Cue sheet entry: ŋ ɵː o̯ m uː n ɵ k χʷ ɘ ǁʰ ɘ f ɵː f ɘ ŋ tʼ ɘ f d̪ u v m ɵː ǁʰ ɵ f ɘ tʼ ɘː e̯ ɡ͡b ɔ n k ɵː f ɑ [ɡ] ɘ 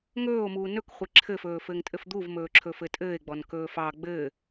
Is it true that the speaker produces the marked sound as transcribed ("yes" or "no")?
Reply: no